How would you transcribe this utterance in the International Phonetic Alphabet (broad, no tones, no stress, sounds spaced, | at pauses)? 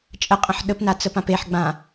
t͡ʃʼ ə qʼ ə̃ ħ ɗ ə p n a t͡s ə p ã p e ħ ɡ͡b ã